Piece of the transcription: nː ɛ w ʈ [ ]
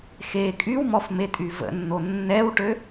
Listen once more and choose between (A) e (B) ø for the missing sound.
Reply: B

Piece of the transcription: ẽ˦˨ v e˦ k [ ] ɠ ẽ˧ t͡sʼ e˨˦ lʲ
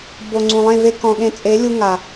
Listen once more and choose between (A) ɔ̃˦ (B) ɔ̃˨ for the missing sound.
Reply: B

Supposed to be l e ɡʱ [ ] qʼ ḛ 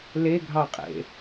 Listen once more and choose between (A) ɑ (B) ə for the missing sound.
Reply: A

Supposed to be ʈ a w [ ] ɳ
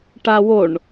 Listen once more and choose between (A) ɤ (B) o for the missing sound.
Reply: B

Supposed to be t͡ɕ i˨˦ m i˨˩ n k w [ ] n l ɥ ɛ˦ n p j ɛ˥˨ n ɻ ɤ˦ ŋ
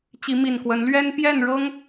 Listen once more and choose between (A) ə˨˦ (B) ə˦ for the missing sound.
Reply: A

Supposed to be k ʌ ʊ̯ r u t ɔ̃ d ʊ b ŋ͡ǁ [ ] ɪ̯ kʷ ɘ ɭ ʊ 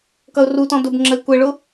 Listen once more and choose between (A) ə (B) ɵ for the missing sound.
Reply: A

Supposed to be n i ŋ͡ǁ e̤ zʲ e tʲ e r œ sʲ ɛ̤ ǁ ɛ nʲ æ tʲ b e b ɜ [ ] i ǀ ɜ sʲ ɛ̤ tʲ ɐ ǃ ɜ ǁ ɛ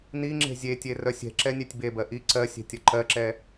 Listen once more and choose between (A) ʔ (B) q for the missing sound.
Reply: A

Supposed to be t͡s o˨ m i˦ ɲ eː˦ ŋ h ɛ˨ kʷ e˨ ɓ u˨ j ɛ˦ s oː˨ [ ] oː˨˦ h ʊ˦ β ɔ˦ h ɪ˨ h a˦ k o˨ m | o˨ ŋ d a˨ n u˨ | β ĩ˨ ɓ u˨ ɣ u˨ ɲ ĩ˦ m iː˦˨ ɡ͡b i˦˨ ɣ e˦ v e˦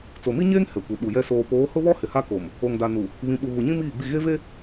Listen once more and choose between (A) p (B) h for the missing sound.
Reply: A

